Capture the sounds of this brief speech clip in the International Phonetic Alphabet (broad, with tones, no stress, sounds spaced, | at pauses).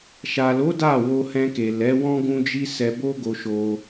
ʃ a˨ l o˨˦ d a˦˨ w o˧ h ɛ̃˧ k e˨ l ɛ˨˦ w ɔ̃˦ ɡ ũ˦ d͡ʒ i˦ s ɛ˧ b o˦ ɡ o˧ ʃ o˧